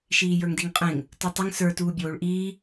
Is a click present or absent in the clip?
absent